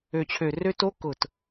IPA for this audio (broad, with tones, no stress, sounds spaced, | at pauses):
ø˨˩ t͡ɕʰ ø˨˩ r ø˧ t o˨˥ k ʊ˨˩ t